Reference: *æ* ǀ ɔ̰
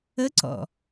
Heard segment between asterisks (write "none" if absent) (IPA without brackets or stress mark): ə